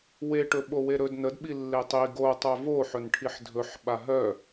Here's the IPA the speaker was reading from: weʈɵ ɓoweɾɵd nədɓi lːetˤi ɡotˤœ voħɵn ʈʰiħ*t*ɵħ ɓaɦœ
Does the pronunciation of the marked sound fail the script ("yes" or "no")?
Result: yes